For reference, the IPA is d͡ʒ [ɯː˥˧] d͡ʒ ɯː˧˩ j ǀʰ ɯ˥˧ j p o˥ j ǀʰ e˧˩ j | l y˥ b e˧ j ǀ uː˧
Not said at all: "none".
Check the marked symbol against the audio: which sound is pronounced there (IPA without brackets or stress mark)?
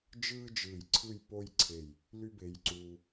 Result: ɯː˥